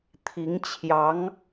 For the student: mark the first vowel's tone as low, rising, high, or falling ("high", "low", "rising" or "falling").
rising